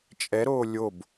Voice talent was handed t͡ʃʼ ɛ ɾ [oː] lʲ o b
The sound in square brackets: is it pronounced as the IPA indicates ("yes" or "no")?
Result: yes